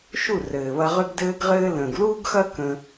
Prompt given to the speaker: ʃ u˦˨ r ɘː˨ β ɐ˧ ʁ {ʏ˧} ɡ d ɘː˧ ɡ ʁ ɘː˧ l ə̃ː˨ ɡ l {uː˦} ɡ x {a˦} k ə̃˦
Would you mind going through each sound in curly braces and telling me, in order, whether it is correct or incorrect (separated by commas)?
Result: correct, correct, incorrect